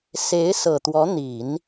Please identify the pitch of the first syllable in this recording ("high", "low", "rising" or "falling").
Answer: rising